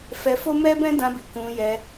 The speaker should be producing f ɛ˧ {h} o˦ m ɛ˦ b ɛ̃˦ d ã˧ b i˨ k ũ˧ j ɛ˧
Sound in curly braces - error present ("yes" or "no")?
yes